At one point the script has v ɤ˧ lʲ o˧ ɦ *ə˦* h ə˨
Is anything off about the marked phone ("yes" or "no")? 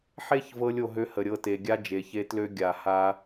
yes